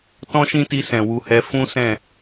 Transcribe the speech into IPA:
t ɔ̃˦ ʃ ĩ˦ t i˧ s ɛ̃˨ w u˧ h ɛ˧ f ũ˦ s ɛ̃˦˨

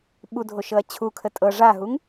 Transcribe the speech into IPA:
ɓ u dʱ o ʃ ɤ ɐ̯ t͡ɕʰ u kʰ ə tʼ ɤ ʐ a ɦ u ŋ

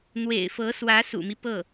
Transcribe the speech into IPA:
n̪ w ḛ˨˩ ɪ̯ f ɤ˧˥ s w ä˧˥ s ṵ˨˩ m i˦ p ɤ˥˩

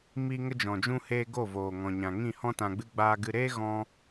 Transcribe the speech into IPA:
m i˧ ŋ ə˧ d͡ʒ ɔ̃˨ d͡ʒ ũ˧ h eː˧ ɡ o˦˨ v oː˨ ŋ ɔ̃˨ ɲ ã˨ ŋ ĩ˦˨ h ɔ̃˦ t ã˧ ɡ͡b ɨ˦ ɡ͡b aː˧ ɡ ɨ˧ ɾ eː˦ ɣ ɔ̃˦

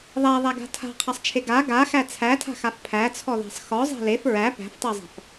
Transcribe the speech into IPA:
ðˤ æ ðˤ æ ɡ a̤ tʰ a̤ qʰ a sˤ t͡ʃʰ e ɡ a ɡ a x æ t͡sʰ æ tʰ a̤ x a f pʰ æ t͡sʰ ɔ ð æ̤ sˤ x ɔ zˤ æ̤ l e f ɹ æ p æ̤ f tˤ e zˤ a̤ f

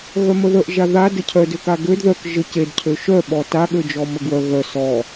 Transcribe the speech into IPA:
ɣ œ m ə ð ə ʔ ʒ a ð a d ə cʰ œ d ø k a ɡ ø d ð œ k ʒ ə c e d cʰ ø ʃ œ ɓ ɔ t a ɠ ø d͡ʒ ɔ m ə ɡ w œ ɣ œ s ɔ

